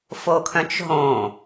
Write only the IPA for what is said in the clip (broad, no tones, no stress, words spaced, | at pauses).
fokʰœ̃t͡ʃɦõ